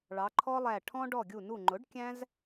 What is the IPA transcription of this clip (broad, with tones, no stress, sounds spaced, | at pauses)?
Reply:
ɭ ɑ˩˧ ǃʰ ɔ˦ lˠ æ˧˩ ʈʰ ɔ̃˦ ɖ ɔ˧˩ ɡʲ u˧˩ n u˧˩ ŋ͡ǃ ʊ˩˥ ɖ kʲ æ̃˦ z